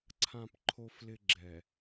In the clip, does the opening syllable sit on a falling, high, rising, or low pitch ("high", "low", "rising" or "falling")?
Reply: low